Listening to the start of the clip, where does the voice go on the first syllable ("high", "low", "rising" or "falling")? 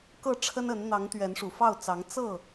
falling